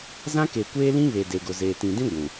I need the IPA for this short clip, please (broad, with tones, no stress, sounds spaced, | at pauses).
z ã˦ k e˨ kʷ eː˦ l ĩ˦ β e˨ d e˨ ɡ ʊ˨ z eː˨ t ĩ˨ d ĩ˦ ɡʷ ũ˨